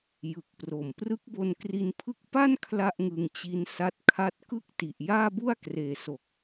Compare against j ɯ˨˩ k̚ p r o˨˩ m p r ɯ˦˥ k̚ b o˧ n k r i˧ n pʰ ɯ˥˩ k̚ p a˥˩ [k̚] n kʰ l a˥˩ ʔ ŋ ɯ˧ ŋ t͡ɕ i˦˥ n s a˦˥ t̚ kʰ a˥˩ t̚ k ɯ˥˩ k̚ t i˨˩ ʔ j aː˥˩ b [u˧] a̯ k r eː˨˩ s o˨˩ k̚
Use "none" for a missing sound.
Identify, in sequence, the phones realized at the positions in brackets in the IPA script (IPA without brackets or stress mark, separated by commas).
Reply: none, u˥˩